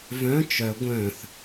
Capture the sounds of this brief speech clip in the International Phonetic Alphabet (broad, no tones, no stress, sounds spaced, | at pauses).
v œ̃ t͡ʃ œ ɡʷ œ̃ θ